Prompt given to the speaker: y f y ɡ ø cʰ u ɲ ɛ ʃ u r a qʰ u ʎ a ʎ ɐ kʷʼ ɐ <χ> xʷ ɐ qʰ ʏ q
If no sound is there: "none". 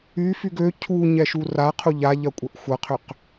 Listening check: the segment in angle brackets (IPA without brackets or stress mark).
ʔ